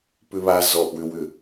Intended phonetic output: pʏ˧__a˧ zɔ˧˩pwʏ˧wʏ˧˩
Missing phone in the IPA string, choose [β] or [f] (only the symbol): β